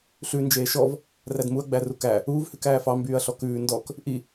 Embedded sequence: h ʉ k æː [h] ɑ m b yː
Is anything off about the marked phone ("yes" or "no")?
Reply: yes